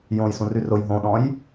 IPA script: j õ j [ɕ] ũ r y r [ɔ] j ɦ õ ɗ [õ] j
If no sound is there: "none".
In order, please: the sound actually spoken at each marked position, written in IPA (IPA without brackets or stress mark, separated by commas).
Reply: s, ʊ, ɔ̃